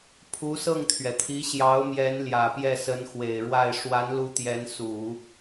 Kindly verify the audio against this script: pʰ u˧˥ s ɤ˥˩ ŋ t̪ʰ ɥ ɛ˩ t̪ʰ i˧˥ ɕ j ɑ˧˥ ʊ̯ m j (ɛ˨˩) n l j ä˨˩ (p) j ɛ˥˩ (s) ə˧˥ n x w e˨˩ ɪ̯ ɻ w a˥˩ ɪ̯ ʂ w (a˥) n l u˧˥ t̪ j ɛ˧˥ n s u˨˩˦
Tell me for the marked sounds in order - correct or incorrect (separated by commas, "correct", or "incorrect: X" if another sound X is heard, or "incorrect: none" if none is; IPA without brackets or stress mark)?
incorrect: ɛ˧˥, correct, correct, incorrect: a˧˥